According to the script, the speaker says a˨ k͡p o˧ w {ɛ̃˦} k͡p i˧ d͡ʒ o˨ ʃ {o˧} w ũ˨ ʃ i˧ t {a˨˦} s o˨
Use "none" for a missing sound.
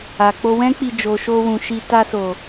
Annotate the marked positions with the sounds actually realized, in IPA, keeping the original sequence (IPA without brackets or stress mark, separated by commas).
ɛ̃˦, o˧, a˧